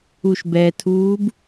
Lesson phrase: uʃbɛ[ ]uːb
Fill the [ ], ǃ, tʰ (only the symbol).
tʰ